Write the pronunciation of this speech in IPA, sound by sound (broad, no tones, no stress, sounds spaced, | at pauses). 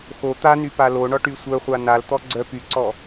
x o t̪ a n y p a l o ɳ ɔ ʈ y sʷ œ χʷ a n a l t̪ ɔ ɡ͡ǀ œ p y ǀ ɔ